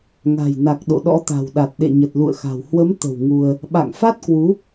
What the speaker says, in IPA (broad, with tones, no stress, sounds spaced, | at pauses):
ŋ a̤˨˩ j n a˨˩ k̚ ɗ o̰˧˨ ɗ ɔ̰˧˥ t̪ a̤˨˩ w ɗ a˨˩ t̚ ɗ ḛ˧˨ ɲ ə˨˩ t̚ l ṵ˧˨ ə̯ x a̤˨˩ w h w ə˨˦ m t̪ ə̤˨˩ w ŋ u˧ ə̯ | ɓ a̰˧˨ ŋ f a˦˥ t̚ k w u˨˦